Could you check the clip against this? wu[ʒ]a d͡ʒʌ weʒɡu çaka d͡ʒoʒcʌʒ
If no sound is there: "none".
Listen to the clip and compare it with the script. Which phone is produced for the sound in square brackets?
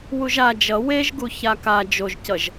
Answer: ʒ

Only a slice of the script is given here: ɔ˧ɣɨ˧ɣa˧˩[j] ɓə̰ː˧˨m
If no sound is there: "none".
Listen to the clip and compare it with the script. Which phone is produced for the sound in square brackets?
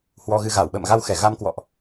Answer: w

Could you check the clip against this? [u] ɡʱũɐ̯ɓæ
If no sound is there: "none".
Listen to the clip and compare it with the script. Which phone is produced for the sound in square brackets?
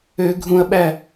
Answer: ø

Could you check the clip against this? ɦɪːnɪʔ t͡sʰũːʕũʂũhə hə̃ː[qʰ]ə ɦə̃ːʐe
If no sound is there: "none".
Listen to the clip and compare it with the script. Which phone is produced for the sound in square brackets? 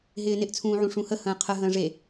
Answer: qʰ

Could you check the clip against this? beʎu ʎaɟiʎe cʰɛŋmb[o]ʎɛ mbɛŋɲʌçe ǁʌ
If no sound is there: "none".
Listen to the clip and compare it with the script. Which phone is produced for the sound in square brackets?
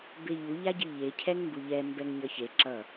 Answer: u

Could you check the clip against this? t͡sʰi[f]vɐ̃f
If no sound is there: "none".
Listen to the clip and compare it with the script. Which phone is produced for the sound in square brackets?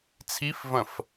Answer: f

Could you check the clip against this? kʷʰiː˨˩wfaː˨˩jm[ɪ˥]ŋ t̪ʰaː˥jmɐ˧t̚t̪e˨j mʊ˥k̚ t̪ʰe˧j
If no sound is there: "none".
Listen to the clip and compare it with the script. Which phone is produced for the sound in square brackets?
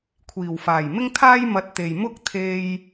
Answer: ɪ˥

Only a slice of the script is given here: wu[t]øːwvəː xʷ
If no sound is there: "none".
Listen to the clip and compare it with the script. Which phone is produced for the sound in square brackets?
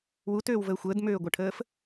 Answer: t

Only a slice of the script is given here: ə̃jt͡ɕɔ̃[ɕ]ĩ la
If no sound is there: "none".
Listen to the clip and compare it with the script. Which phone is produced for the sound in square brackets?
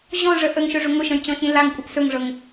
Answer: ɕ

